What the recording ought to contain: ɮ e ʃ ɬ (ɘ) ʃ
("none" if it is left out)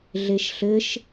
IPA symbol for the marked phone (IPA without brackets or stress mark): ɘ